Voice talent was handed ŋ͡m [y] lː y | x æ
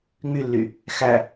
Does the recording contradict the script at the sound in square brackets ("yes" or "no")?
no